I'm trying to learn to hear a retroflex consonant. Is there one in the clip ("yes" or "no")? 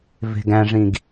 yes